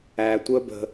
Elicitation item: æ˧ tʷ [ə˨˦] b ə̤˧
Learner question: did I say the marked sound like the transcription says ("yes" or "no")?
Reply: no